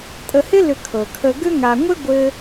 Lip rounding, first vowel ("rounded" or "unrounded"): unrounded